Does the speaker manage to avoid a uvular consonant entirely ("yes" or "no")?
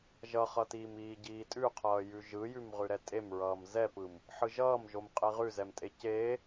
no